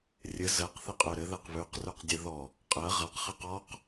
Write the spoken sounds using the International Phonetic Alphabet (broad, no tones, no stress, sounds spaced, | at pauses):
rʲ ɘ z ɜ q θ e qʼ ʉ ɾ ɘ ð ɜ q β ʉ q r ʉ q dʲ ɘ ð ɔ | qʼ ɜ ʁ a q χ ɜ q ɔ q